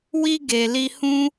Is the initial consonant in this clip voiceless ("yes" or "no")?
no